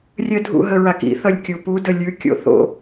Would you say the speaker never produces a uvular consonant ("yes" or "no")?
yes